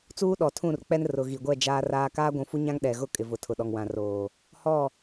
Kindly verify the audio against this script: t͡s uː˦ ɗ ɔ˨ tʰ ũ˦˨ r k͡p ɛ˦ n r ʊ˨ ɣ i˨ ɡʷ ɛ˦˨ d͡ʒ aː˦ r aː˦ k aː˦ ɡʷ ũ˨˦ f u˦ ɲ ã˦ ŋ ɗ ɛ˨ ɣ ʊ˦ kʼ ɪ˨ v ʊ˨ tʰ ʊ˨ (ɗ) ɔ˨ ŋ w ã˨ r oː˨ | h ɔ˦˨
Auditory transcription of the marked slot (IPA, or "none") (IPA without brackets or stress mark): ɗ